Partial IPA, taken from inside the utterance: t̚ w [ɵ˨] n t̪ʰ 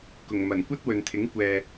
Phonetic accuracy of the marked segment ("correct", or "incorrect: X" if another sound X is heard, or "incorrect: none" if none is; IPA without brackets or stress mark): correct